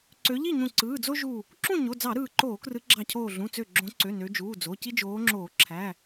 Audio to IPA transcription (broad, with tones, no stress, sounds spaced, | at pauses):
ǀ ø˨˦ ʎ i˥˨ ɲ ũ˧˩ ǀ ɯː˩˧˩ d͡z o˦ ʒ u˧˩ | ǁ ũ˥˨ ɲ o˩˧˩ d͡z ɑ˧˩˧ ɾ ɯː˧˩ ǃ oː˧˩˧ k r ɯ˨˦ ɡ͡ǁ ɑ˧˩ cʰ oː˧˩ ɮ ũ˩˧˩ t͡s ø˧˩ ɡ͡ǁ õ˨˦ ǀ ø˩˧˩ n ø˨˦ d͡ʒ uː˩˧˩ d͡z o˩˧˩ c i˦ d͡ʒ oː˨˦ ŋ͡ǁ oː˧˩˧ ǁʰ æ˩˧˩